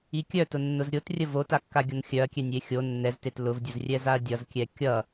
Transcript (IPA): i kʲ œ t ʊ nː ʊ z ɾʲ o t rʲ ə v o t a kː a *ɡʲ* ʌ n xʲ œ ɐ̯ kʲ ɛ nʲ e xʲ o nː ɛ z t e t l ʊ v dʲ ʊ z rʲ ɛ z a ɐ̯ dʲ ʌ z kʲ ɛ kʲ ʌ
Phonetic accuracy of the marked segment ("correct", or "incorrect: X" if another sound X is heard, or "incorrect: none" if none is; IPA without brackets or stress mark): correct